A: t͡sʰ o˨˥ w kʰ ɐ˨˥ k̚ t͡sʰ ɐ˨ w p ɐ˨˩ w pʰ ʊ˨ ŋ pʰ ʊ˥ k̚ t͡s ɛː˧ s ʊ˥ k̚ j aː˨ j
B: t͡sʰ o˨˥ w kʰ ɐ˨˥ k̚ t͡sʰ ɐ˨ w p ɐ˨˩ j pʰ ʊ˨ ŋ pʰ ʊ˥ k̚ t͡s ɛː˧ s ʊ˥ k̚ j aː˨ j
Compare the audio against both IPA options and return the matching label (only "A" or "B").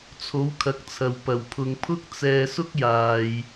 A